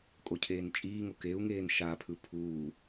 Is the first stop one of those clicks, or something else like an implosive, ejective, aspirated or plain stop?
ejective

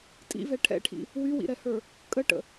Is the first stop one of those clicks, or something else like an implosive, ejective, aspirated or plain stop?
ejective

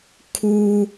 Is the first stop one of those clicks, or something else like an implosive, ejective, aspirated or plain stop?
aspirated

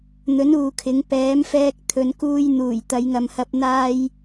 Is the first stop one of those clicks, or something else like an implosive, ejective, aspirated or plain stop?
aspirated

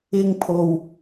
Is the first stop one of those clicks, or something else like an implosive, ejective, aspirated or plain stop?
aspirated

